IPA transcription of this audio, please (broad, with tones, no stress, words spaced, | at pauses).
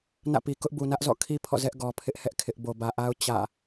nä̰˦˨pi˨ kʊ˦ʔbu˨ nä˦ʔzɔ̰˦˨kʰi˦ pʰɔ̰˦˨zɛ˦ʔ ɡɔ˨pʰɪ˦ʔhɛ˦ʔ kʰɪ˦ʔ bo˨bä˨ʔa˦ʊ̯ t͡ɕä̰˦˨